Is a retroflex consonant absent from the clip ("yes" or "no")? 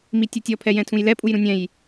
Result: yes